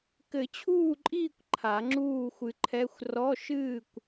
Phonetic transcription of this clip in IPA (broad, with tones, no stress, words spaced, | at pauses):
kɘ˨˩˦t͡ɕʰuː˥˨ǃʼiː˥˨kʷ ǃʰa˨˩˦ŋ͡ǁuː˥˨xʷɨ˧ǃʰɛ˧˥˧xʷ rɔ˧˥˧ʃɨː˥˨kʷ